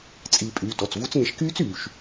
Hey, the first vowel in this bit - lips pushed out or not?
no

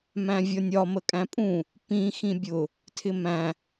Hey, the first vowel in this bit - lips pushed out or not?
no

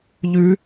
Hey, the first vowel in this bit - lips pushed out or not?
yes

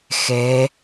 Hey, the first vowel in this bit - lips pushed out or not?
no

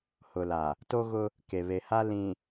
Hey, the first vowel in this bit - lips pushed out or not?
yes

